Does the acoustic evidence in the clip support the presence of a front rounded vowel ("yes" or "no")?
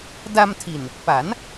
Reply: no